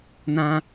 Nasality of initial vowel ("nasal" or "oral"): nasal